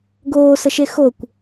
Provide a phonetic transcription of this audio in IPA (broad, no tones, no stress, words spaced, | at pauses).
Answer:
ɡoːsəʃe xokʷ